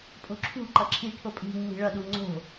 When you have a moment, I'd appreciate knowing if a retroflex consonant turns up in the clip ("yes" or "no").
yes